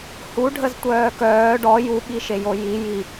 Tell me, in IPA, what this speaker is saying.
h u ɖʱ ə z tʷ œː k œː ɖ ɔ j u ɓ i ʃ e j o j i j i

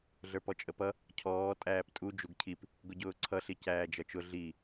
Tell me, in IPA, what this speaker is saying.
ɮ ə˞ p ɔ t͡ʃʼ ə p ʌ | cʰ ɔː tʼ æː p tʼ u d͡ʒ u ɡ cʰ i p | ɡ ʊ ɟ ʊː ǀʰ ʌ ɬ i c æː d͡ʒ ʌ t͡ʃ ʊ ɮ i

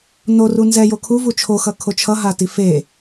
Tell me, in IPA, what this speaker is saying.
n o r u n z ɛ j o kʰ u v u t͡ʃʰ o x ʌ kʰ o t͡ʃʰ ʌ ɦ a t i f e

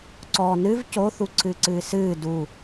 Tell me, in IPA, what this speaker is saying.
ǀ ɔ n ɨ v c o θ u ǀʰ ɨː ǀ ɨː s ɨː d u

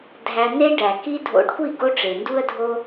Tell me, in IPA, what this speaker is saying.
dʱ æ˧ n̪ e˦ ɖ æ˨ k i˦ dʱ o̰˧ ɖ kʷ i˦˨ ɡ o˦ ʈ͡ʂ e˨ n d u˦ ə̯ dʱ o˦

